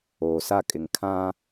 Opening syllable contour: low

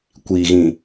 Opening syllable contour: low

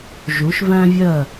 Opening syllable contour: rising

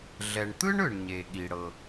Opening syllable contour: low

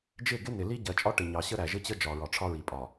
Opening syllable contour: falling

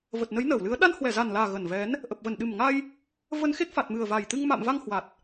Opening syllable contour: low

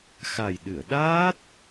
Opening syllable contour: low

